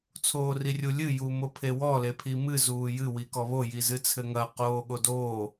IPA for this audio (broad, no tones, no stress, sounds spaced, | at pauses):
t͡sʰ oː r i rʲ u lʲ ɨ j u m o pʰ e w ɔ l e pʰ i m ɨ z uː j ɨ w i k ɔ β o j i z ɨ t͡sʰ ɘ ŋ ɐ q oː ɠ o d oː